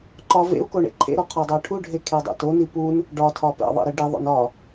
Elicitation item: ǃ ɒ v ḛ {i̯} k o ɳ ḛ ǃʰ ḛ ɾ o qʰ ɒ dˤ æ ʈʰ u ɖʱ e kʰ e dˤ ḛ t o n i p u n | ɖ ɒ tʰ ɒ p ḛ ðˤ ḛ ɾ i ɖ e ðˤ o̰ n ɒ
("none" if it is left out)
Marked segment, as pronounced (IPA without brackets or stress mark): u̯